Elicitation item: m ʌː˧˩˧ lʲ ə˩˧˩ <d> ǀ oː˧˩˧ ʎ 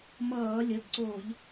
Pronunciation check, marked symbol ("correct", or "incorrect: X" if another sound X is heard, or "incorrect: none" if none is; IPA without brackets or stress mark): correct